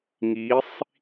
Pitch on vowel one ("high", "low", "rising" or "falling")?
rising